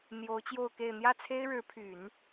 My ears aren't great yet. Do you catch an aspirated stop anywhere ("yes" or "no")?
yes